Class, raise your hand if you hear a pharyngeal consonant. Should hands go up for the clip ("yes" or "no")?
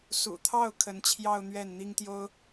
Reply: no